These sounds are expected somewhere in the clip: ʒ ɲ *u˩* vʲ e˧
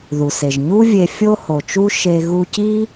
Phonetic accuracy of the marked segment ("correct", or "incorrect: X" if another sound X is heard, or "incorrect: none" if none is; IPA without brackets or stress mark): incorrect: u˥